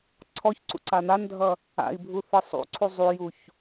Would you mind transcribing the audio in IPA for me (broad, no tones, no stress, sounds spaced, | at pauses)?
ǀʰ ɔ ç ǀ ṵ ǀ a n̪ a n dʱ ʌ | a̰ i̯ bʱ u θ ɯ sˤ ṵ ǀʰ u zˤ u j u ç